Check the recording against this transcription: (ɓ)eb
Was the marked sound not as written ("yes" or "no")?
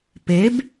yes